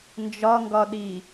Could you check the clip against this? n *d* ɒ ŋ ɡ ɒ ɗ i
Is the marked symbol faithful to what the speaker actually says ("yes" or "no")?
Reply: no